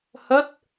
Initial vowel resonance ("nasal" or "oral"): oral